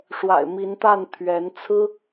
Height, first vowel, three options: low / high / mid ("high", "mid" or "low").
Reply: low